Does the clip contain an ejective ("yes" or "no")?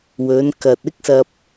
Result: no